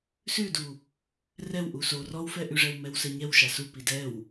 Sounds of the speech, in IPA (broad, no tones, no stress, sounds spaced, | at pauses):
s ʉ d u | r ɛ w ʔ u s o r ɔ w f ɛ ʔ ʉ ʐ ɛ w m ɛ w s ɛ ɲ ɛ w ʃ a s u p i d ɛ w